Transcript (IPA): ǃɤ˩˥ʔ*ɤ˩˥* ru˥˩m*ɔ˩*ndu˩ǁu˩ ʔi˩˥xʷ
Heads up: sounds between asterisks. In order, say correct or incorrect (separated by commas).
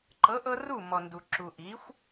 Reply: incorrect, correct